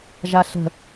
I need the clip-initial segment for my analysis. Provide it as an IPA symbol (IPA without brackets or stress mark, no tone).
ʒ